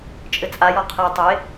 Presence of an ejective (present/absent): present